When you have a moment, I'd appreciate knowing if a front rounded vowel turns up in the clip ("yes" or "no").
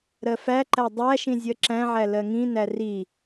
no